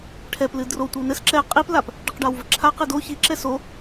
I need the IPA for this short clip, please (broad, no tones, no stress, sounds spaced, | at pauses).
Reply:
ʈʰ ɛ p l ɨ d r o tʷ i w n ɘ s ǁ ɛ qʼ i p l a p | ɖ i q ɖ a w v ɘ ǁʰ a q e d o ç i ǁ ɛ s o